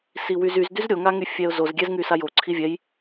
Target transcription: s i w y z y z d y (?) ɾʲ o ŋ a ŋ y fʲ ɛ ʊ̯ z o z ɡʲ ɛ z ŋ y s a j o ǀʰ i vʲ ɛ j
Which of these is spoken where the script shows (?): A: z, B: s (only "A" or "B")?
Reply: A